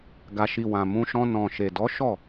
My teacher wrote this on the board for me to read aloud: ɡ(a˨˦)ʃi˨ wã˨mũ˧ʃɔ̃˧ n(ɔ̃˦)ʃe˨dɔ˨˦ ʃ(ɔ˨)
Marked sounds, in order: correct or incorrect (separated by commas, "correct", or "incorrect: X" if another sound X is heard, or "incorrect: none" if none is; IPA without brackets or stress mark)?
incorrect: a˨, incorrect: ɔ̃˨, incorrect: ɔ˦˨